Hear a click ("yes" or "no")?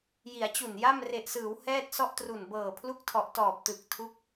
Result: no